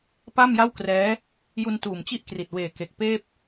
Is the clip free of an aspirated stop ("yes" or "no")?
yes